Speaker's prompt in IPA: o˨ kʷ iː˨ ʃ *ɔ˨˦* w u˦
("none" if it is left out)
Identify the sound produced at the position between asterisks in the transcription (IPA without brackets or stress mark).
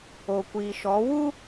ɔ˨˦